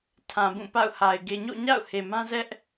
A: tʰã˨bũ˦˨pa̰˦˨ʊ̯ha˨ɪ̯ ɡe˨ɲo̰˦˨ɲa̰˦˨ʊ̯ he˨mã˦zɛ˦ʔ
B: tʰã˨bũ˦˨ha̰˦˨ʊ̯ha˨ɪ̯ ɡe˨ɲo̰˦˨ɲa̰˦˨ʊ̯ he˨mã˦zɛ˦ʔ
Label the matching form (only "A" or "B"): A